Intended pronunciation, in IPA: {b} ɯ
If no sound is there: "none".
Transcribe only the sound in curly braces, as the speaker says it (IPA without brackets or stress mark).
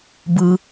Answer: b